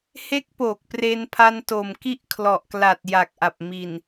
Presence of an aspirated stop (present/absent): present